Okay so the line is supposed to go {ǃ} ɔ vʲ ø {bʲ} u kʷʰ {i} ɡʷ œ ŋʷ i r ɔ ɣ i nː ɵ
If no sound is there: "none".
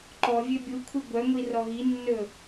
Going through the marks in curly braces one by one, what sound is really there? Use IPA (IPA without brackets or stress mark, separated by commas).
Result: ǃ, bʲ, i